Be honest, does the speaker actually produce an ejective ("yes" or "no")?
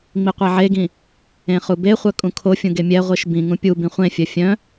yes